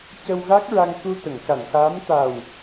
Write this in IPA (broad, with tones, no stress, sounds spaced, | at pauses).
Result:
c ə˧ w ɣ a˦˥ k̚ ɹ a˧ ŋ k u˧ t̪ ə˨˩˨ ŋ k a˨˩˨ n x aː˧˥ m t̪ a˨˩ w